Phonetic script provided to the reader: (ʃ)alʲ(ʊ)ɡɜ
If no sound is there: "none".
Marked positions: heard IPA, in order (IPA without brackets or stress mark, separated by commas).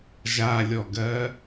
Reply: ʒ, ɔ